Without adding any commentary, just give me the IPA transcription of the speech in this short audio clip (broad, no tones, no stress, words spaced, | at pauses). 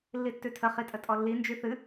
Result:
lːitːʉtʰə χitʼətʼɔlːi nd͡ʒyθɨ